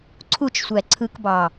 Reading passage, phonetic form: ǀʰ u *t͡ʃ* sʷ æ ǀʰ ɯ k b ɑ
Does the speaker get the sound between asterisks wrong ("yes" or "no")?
no